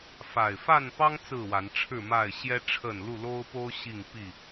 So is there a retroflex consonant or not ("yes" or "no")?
yes